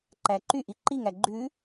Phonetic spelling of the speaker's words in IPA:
ǃæǃyʔi ǃiŋæ ɡ͡ǃʉ

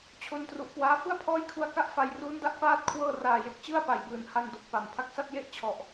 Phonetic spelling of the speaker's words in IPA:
t͡ɕʰo˧ntru˨˩ʔkwaː˦˥ fɯ˥˩a̯pʰɔː˦˥jkʰu˧a̯ka˦˥ʔ fa˧jruː˦˥nda˦˥ʔ paː˥˩t̚kʰwɤː˥˩ raː˨˩je˨˩k̚t͡ɕɯ˥˩a̯ pa˨˩jbɯː˨˩n ha˧ndo˨˩k̚pa˨˩m pʰa˦˥k̚sa˥˩t̚ je˥˩ʔt͡ɕʰɔ˨˩ʔ

